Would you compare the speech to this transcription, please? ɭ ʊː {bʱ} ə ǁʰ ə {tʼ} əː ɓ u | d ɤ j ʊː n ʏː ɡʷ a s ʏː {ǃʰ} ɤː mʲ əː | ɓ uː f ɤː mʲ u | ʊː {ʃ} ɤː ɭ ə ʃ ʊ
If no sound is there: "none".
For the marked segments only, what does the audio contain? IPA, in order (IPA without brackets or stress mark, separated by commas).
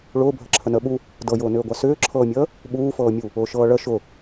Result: bʱ, n, ǁʰ, ʃ